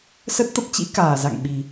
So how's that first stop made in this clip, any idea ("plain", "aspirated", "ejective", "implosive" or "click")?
plain